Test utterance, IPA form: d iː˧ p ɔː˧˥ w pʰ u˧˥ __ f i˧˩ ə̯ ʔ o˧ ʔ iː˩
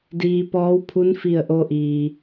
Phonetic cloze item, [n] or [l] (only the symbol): n